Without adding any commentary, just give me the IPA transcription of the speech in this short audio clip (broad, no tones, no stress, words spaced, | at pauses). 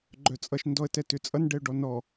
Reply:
ɡ͡ǃœt͡sʼʌʃ ndɔə̯tɛtʏt͡sʼʌn ɖɛʊ̯ɖɔnɔ